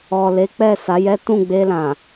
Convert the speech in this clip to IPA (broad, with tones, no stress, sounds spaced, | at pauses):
ɔ˨ l e˨˦ k͡p ɛ˦˨ s a˨˦ j ɛ˦ t ũ˦˨ ɡ͡b e˧ l ã˨